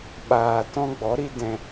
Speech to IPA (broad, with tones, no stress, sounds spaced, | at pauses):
ɓ aː˧ t ɔ̃˦ ɡ͡b ɔ˨˦ ɾ i˦ d ɛ̃˧